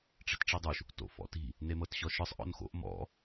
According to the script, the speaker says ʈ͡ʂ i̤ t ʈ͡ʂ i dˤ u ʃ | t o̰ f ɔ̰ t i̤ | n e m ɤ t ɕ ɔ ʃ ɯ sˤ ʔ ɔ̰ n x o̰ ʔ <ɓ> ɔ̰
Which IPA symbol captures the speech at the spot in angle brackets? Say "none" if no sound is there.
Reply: m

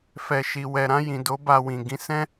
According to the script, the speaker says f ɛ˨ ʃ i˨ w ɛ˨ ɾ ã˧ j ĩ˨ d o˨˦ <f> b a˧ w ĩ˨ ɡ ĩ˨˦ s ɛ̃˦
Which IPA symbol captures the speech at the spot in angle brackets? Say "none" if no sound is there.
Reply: none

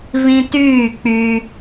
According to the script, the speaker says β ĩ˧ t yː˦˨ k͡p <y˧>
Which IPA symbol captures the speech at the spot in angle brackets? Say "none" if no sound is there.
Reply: y˧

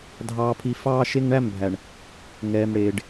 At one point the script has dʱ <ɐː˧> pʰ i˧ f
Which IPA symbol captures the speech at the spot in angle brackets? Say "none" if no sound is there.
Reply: ɑː˧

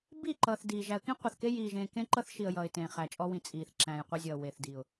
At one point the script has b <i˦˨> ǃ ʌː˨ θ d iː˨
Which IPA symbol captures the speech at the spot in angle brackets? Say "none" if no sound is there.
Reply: i˦˨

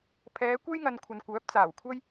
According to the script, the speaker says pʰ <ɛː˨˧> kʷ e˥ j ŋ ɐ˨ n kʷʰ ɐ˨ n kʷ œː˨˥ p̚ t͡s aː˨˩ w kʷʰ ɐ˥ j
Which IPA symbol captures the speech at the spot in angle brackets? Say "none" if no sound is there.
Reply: ɛː˨˧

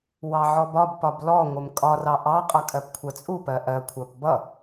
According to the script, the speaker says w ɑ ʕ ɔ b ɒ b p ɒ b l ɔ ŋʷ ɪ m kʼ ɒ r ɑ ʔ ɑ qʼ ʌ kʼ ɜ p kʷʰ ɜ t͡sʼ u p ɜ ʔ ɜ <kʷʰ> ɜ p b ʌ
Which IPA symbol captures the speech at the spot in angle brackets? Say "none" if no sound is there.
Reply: kʷʰ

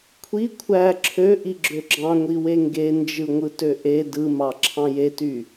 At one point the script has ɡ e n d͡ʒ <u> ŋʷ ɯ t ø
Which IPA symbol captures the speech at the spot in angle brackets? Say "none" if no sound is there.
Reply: ɯ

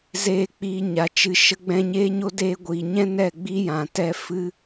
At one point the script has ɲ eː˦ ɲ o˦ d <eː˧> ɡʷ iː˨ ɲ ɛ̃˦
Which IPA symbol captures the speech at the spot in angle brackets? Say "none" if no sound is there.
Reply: eː˧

